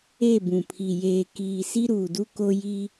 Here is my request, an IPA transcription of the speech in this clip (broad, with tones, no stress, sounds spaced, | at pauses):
e˦˨ b ũ˨ pʰ i˨ j eː˨ k iː˨ s i˦ ɾ uː˨ d u˦ k o˦ j i˦